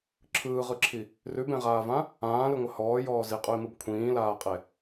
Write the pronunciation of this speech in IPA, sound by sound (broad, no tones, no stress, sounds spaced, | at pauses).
ǁʰ ɯː ʁ ɯ ǁʰ i | r ʉ b ẽ ʁ aː v ã | ãː l ɯ ŋʷ ɘ h ɔː j ɔː z i qʼ ʉ i̯ m ɯ b kʷʰ ĩː l aː qʼ e